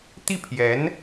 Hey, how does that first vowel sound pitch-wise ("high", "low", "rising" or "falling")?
falling